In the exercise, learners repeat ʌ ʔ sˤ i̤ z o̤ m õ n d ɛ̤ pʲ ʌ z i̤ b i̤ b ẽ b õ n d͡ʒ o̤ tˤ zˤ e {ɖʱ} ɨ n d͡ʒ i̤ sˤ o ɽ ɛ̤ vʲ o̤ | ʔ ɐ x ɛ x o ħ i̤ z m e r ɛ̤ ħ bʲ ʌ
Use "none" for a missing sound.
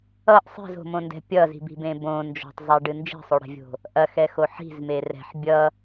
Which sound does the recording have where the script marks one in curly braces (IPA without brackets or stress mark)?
ɖ